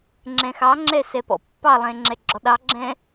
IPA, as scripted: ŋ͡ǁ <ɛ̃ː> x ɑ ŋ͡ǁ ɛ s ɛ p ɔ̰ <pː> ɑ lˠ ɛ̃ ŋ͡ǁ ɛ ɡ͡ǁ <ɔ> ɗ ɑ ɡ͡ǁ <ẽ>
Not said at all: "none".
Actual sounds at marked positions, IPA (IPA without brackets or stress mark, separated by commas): ɛ̃, pː, ɔ, ɛ̃